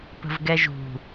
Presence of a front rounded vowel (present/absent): absent